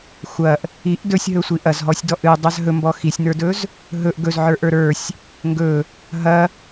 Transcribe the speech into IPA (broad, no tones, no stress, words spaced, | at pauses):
xʷɐʔ | iʔ dɵsʲɦɵsʷi ʔɐzɦɔsʲdɔʔ ɨdˤaz ɦɵmbɔ xisʲnə˞dɵz | ɦɵʔ ɡɵzʕə˞ʔə˞ ɾə˞sʲ | ŋɡɵ | ɦɐ